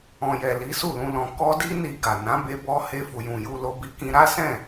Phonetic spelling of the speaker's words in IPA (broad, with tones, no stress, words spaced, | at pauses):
ɔ̃˨jɛ˨ li˨˦su˦˨lũ˧ lɔ̃˨ kɔ˧di˧ni˨ ɡa˨ nã˨˦be˧ bɔ˧ he˧fu˨jũ˨ ju˧lo˧ bi˧kĩ˧ ɾa˦sɛ̃˦˨